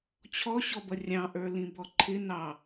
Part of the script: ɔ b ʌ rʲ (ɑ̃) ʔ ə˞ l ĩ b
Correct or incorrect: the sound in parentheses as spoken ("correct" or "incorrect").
correct